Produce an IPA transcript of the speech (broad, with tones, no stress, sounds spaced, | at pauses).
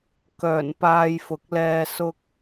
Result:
k œː˨˩ n p aː˧ j f ʊ˨˥ k̚ l ɛː˧ s ʊ˥ k̚